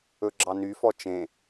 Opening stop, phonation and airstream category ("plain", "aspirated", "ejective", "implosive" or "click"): click